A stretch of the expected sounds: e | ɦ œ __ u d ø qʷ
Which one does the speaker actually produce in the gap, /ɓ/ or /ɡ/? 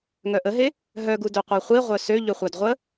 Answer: ɡ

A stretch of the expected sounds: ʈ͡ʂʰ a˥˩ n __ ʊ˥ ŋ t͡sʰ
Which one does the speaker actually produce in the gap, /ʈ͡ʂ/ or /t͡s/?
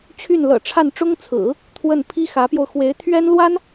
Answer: ʈ͡ʂ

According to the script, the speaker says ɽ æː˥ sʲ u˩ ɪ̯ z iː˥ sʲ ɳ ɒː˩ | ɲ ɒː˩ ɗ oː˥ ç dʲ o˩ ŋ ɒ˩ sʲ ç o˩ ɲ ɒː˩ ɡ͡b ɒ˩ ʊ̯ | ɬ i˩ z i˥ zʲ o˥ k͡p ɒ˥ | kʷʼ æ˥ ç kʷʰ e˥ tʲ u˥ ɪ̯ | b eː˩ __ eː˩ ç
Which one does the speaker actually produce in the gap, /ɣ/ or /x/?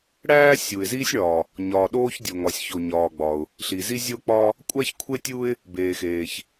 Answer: x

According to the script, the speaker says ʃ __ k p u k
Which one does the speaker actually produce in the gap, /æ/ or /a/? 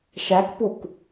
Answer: æ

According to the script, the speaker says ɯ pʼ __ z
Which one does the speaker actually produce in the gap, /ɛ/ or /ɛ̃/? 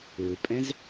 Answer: ɛ̃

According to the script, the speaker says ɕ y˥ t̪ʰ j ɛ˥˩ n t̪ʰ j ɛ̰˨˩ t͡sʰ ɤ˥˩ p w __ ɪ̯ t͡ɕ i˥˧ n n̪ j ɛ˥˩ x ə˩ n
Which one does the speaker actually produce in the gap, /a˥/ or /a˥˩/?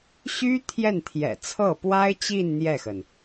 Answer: a˥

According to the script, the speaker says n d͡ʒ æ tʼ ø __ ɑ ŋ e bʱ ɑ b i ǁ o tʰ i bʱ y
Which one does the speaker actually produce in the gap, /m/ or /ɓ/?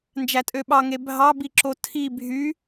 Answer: ɓ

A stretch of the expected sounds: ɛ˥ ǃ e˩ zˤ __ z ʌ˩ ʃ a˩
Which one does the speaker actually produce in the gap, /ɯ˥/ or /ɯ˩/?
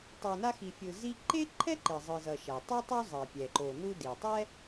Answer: ɯ˩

